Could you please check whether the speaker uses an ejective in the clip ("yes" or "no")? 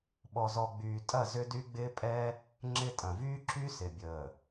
yes